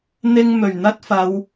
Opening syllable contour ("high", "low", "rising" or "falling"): high